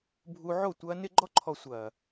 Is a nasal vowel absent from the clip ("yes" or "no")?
yes